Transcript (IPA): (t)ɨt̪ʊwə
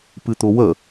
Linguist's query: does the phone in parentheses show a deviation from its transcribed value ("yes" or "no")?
yes